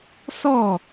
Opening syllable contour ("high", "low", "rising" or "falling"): falling